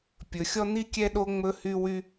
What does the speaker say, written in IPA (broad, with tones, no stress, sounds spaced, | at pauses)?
pʲ ɵ˩ xʲ ɔ˥ n̪ i˥ kʲ ɛ˥ ɗ o˥ ŋ͡m ɵ˥ h y˥ w y˥